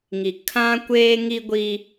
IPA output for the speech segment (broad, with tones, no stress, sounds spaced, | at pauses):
ŋ i˨ kʰ ã˦ kʷ eː˦ ŋ i˦ ɡʷ i˦